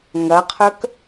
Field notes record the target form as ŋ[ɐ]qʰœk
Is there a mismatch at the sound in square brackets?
no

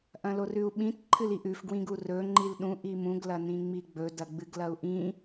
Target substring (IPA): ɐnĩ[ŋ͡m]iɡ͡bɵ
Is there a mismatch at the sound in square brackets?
no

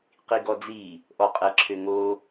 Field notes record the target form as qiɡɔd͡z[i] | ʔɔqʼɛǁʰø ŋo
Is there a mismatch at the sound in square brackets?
no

